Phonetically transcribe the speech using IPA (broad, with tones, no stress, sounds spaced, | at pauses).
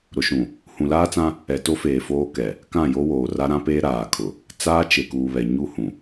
ɾ ʊ˨ ʃ ũ˨ | h ũ˨ l aː˦ t͡s ã˦ | ɛ˨ t o˦ f eː˨ f oː˦ k ɛ˨ | k ã˦˨ j o˦ w oː˨ r a˦ ɾ ã˦ p eː˦ ɾ aː˨ kʰ ʊ˨ | t͡s aː˦ t͡ʃ e˨ k uː˨ β ɛ˨ ɲ u˦ h ũ˨